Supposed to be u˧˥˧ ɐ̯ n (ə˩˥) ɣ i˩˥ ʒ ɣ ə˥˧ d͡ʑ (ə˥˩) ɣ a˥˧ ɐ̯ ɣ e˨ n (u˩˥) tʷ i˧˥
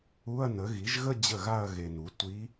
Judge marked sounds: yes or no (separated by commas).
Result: yes, yes, yes